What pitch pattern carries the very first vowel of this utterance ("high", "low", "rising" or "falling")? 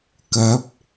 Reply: rising